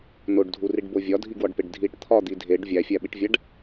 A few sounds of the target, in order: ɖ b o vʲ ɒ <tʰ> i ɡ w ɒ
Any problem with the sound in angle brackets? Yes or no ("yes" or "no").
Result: yes